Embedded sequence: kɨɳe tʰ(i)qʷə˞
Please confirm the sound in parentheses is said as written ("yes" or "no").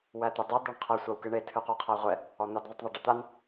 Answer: no